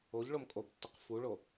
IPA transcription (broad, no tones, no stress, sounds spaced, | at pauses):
o ʎ ɭ o m kʼ o b tː ʊ q f u ɭ o